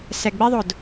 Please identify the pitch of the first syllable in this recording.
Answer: low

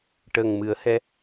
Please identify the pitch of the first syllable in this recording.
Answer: low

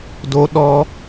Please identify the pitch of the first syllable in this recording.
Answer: high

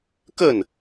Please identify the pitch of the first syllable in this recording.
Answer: falling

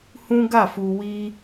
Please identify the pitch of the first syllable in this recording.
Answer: high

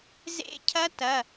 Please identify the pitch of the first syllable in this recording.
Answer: rising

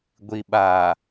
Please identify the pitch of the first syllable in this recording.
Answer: low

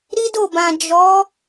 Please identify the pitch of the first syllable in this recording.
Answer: high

